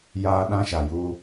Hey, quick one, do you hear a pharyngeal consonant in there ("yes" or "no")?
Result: no